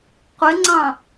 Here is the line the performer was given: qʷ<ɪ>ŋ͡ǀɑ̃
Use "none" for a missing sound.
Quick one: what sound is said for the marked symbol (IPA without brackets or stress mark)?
ɪ